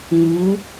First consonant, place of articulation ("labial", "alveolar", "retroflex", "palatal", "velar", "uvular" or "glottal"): velar